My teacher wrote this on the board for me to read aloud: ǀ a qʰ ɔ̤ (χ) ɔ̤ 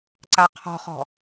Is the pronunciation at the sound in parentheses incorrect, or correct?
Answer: correct